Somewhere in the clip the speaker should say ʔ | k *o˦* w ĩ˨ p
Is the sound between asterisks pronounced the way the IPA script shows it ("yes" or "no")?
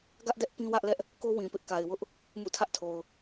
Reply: yes